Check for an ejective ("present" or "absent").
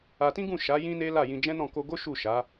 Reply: absent